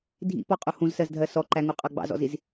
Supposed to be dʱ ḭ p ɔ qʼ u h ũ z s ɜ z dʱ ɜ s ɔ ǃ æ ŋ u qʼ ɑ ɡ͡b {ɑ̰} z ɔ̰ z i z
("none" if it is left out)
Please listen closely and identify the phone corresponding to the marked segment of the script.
ɑ̰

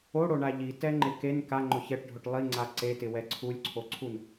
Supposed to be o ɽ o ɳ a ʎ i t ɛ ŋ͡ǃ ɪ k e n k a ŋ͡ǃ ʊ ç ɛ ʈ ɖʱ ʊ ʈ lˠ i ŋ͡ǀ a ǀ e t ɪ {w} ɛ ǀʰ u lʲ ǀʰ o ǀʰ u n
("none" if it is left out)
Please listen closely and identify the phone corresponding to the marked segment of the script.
w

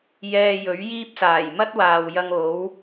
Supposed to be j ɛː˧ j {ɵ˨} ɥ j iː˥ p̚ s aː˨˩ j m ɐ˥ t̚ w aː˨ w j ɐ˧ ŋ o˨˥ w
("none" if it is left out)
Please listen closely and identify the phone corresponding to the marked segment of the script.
ɵ˨˥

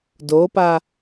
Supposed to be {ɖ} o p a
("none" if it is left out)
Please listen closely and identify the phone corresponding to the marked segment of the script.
d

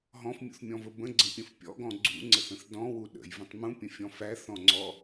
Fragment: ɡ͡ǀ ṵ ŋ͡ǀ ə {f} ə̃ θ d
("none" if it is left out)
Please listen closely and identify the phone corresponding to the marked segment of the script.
θ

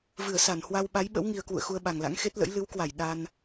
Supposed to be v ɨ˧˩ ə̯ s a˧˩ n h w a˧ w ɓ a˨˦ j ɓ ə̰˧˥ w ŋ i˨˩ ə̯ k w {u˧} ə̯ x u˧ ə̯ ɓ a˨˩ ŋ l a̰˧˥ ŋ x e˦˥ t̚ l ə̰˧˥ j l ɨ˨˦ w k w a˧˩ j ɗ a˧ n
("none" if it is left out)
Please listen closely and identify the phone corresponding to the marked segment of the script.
ṵ˧˨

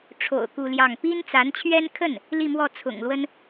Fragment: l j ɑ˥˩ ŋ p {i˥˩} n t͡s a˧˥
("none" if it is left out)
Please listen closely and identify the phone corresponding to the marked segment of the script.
i˥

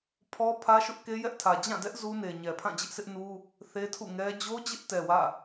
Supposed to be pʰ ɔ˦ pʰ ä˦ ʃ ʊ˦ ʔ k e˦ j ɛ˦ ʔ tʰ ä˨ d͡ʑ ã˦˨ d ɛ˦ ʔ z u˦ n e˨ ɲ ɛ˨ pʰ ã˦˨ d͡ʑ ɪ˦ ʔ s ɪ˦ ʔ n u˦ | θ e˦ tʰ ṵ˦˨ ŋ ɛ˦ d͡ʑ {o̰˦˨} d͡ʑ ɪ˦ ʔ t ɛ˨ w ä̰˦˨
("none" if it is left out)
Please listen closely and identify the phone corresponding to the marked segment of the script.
o˦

